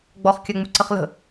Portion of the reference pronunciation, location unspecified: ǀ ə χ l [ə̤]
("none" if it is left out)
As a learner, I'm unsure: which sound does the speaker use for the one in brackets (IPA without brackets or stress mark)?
ə̤